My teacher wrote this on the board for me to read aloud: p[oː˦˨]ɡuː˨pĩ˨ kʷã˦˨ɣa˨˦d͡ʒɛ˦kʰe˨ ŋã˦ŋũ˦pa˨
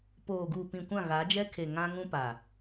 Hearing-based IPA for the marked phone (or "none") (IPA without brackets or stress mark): oː˨